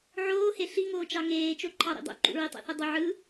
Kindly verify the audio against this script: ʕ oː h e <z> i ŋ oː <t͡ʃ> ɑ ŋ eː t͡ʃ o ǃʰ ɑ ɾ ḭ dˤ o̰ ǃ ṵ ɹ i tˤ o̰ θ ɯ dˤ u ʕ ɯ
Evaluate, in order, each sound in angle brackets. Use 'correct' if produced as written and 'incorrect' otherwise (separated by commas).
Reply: incorrect, correct